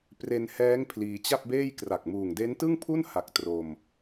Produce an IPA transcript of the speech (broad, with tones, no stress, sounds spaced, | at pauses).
p r e˧ n h ɛː˦˥ ŋ pʰ l iː˧ t͡ɕ a˥˩ p̚ b eː˥˩ j k r a˨˩ k̚ m uː˨˩ ŋ d e˦˥ n t ɯ˥˩ ŋ pʰ u˥˩ n h a˨˩ k̚ t r o˧ m